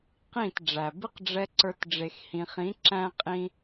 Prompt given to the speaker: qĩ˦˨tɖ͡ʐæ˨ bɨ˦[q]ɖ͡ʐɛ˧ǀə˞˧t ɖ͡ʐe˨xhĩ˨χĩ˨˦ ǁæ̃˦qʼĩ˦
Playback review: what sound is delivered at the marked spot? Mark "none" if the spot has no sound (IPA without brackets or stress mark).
q